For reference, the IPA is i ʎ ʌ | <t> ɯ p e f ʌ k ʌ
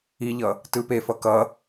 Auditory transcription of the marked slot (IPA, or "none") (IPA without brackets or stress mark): t